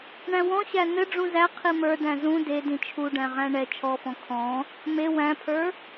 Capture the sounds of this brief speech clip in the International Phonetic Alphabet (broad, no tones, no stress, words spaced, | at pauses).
ɳæ̃wɔ̃ɕæ n̪ɘ ɖ͡ʐũzæ qʰimə˞dæ̃ zũ de dĩt͡ʃʰuɖæ̃ʁæ̃ ɳɛ t͡ʃʰɔfɔ̃ kʰɔ̃ | me wæ̃pʰə˞